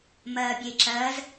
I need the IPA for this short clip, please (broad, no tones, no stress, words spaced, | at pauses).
mɐːbʲeǁɐːz